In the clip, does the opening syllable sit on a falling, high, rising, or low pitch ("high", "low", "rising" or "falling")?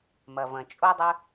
low